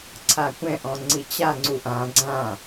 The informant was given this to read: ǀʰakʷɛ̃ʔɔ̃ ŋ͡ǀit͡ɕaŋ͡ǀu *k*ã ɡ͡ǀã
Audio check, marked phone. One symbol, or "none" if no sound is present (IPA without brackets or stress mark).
ʔ